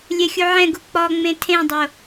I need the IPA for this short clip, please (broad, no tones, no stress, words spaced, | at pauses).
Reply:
lʲɛxʲuʕɛ̃ɡu k͡pɔŋ͡mẽ tʰẽdˤo